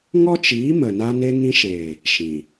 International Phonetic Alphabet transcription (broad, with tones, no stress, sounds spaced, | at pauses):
ŋ ɔ˦ t͡ʃ iː˨˦ m ə˨ n a˧ n e˧ ŋ ĩ˧ ʃ eː˨ | ʃ ĩ˨